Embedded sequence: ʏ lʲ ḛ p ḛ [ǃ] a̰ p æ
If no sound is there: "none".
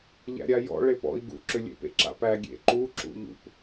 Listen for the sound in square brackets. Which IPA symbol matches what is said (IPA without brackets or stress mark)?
ǁ